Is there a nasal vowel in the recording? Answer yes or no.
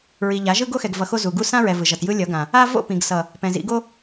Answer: yes